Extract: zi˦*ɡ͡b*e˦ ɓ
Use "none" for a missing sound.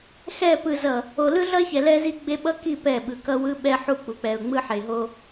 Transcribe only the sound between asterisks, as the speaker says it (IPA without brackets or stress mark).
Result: ɡ͡b